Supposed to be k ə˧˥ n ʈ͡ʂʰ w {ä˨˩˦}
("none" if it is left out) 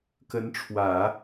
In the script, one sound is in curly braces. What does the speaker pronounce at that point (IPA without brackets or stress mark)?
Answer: ä˨˩˦